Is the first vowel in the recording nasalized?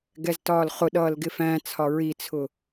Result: no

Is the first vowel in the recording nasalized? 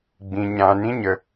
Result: yes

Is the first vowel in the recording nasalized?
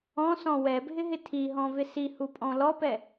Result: yes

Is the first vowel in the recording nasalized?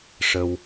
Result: no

